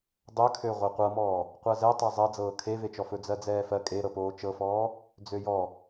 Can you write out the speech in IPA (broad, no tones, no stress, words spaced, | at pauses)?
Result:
dˤɵkʰø ʁʷɜqʷɤmɔː | qʷɜzɛtˤɜ zˤɜd͡zɤː kʰevet͡ʃɔ fɵd͡zɜd͡zɛːfɜ kʼeɾɤ poːt͡ʃɤfɔː | d͡zøjɔ